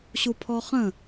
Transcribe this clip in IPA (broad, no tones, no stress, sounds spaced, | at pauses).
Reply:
ɕ u pʰ ɔ χ ə̃